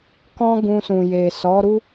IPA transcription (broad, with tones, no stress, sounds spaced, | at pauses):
k ɔ̃˦ ɡ ũ˧ s ũ˨ j e˨ s ɔ˨˦ ɾ u˦